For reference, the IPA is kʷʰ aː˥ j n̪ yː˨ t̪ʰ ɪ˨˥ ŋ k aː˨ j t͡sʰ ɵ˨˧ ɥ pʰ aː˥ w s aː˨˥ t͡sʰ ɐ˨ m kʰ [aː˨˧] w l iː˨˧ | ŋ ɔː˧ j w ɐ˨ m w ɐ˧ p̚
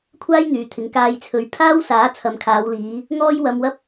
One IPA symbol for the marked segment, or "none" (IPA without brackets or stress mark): aː˨˧